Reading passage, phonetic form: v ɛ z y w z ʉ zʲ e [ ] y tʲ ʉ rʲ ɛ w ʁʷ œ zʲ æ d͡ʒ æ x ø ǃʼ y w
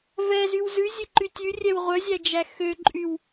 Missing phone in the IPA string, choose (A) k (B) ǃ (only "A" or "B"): B